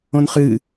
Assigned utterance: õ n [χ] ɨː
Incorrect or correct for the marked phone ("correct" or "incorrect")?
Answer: correct